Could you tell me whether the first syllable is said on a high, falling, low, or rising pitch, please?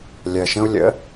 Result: low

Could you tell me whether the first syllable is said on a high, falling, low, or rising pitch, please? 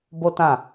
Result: high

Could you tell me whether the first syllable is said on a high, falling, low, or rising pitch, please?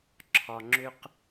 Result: low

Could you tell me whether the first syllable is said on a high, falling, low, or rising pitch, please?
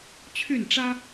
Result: falling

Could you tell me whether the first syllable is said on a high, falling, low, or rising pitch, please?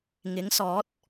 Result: rising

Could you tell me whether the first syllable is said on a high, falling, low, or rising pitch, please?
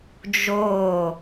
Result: falling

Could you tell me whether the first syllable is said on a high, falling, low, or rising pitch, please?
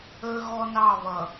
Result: high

